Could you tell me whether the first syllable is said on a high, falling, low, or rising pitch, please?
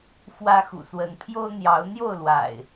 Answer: high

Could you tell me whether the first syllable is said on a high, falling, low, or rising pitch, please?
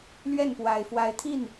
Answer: falling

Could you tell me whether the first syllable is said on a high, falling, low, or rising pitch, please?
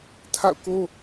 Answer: falling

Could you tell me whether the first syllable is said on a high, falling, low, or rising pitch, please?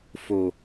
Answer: low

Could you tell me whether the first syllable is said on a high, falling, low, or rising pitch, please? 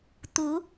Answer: rising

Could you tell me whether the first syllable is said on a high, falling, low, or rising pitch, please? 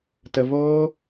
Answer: low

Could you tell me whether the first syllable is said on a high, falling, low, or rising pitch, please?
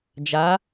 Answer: rising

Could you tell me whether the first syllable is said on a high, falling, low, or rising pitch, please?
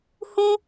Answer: high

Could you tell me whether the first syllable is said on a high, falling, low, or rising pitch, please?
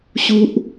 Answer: high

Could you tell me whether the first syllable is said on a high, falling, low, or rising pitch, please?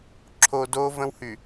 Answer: low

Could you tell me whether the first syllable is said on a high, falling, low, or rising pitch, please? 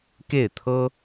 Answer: falling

